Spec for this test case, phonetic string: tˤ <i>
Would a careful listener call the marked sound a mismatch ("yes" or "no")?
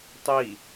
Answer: no